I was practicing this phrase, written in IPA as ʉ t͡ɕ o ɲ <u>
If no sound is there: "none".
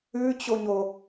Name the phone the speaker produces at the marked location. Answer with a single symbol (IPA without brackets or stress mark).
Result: o